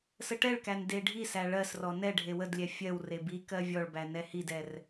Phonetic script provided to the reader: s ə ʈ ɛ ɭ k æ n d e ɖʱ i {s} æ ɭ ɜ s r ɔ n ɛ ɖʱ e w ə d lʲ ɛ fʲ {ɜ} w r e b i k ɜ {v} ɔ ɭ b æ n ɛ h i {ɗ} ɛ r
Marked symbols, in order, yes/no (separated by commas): yes, yes, no, no